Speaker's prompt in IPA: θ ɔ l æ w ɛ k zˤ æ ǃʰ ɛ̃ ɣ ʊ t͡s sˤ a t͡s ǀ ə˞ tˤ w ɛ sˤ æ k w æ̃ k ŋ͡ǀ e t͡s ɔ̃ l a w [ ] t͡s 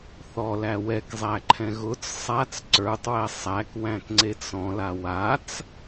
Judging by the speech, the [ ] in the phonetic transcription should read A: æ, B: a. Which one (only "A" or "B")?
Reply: B